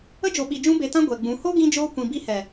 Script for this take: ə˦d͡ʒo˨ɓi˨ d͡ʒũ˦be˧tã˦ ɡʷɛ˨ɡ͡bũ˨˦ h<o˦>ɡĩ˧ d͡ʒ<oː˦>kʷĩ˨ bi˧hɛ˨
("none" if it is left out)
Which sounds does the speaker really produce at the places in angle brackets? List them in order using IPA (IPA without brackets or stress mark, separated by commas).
o˦, oː˦